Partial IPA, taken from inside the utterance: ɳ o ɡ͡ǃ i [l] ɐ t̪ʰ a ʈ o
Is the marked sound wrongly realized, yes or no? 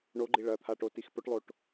yes